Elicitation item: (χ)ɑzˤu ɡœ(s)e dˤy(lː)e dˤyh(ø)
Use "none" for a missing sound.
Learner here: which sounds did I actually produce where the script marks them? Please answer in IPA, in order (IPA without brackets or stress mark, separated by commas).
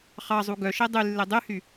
χ, ʃ, lː, y